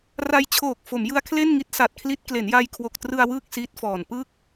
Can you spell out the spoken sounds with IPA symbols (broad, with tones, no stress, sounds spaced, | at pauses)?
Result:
r a˧ j t͡ɕʰ oː˨˩ k̚ f o˩˦ m j ɯ˦˥ a̯ kʰ l e˥˩ n ŋ i˦˥ t̚ s a˨˩ t̚ kʰ l i˦˥ t̚ k l e˩˦ n j a˧ j kʰ w o˨˩ k̚ t r ɯ˧ a̯ w ɯː˥˩ k̚ s iː˦˥ t̚ f ɔː˨˩ n p ɯ˥˩ k̚